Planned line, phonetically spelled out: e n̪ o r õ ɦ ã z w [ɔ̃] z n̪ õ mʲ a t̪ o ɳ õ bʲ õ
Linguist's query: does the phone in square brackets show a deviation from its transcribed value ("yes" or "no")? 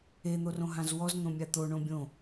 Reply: yes